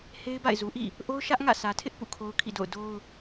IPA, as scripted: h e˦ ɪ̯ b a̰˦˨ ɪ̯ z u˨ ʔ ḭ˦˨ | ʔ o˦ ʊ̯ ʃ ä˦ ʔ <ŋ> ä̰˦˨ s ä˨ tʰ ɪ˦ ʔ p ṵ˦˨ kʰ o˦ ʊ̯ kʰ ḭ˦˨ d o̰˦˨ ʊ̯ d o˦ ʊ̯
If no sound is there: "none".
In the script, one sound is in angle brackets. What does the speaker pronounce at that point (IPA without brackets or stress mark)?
ŋ